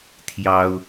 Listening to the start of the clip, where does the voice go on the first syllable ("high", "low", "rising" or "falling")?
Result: high